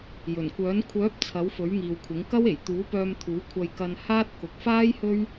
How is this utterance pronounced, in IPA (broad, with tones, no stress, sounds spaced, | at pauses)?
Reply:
j ɵ˨˩ n kʷ œː˨˥ n kʷʰ œː˨˥ p̚ t͡sʰ ɐ˨˥ w f ɵ˨˥ ɥ ŋ iː˨ w kʷʰ ɪ˨˥ ŋ k ɐ˥ w e˨˩ j t̪ uː˨˥ p œː˧ m t̪ʰ uː˨˥ kʷʰ ɐ˧ j k ɐ˧ n h aː˥ t̚ k ʊ˨ k̚ f aː˥ j h ɵ˥ ɥ